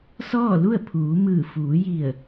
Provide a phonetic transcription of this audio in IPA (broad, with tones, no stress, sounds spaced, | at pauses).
s ɔː˥˨ l u˥˨ ə̯ pʰ uː˩˧ m ɯː˧˩ f uː˩˧ j i˧˩ ə̯